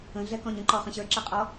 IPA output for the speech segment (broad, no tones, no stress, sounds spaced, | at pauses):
ə̃ ɮ ɛ k ɔ̃ ɲ ə̃ ǃ ɔ χ ə̃ ɕ ə˞ ǁ ɛ qʼ ɔ